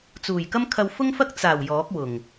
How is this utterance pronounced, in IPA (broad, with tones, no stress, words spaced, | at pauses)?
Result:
t͡suː˨˩jkɐ˥mkʰɐ˧w fʊ˥ŋfɐ˥k̚ t͡saː˨˩w jɔː˨˥k̚wʊ˨˩ŋ